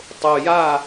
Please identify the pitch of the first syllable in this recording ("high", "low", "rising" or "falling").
low